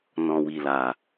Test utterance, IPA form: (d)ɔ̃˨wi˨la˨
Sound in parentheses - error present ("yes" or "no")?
yes